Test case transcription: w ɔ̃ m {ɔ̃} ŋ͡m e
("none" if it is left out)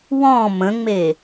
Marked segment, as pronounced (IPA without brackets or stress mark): ə̃